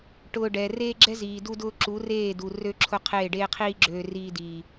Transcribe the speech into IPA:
ʈ ʊː˧ ɖ ɛ˨ r eː˦ ɡ͡ǁ ɛ˦ z iː˨ d u˧ d ʊː˧ ǁ u˨˦ r eː˦˨ d u˨ r ø˦ ǁʰ ʊ˦˨ qʰ eː˦˨ ɖ eː˦ qʰ iː˦ ɡ͡ǁ øː˧ r iː˧ d iː˨

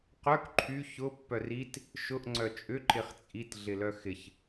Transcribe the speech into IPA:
q œ k ǃʰ y ç ʊ pː œ r i t | ʃ ʊ ʔ ŋ͡ǀ œ t͡ʃʼ ʏ ǃ ɪ χ t͡sʼ i t ɮ ɪ l œ x ɪ ç

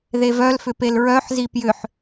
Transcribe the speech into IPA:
ð e v œ l f ʏ p e l ɹ œ ħ z i p j ʏ ħ

